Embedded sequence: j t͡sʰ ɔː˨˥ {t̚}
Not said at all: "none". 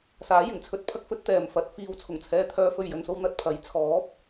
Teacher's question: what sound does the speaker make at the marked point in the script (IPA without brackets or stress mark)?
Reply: p̚